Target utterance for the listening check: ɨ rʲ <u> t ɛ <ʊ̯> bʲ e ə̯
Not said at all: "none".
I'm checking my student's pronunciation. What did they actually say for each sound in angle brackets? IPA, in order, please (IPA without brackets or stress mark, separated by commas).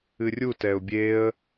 u, ʊ̯